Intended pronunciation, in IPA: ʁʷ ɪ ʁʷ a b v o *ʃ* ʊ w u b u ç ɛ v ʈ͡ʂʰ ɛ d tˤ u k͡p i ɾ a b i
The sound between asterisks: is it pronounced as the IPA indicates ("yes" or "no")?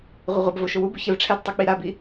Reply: yes